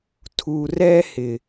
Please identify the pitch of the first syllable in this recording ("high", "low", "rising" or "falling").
low